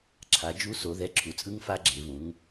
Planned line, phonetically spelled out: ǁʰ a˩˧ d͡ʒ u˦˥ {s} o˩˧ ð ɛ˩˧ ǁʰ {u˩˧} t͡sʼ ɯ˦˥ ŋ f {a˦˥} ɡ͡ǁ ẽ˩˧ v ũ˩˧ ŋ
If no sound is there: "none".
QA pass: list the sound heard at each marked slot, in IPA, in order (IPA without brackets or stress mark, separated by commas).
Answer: s, u˩˧, a˦˥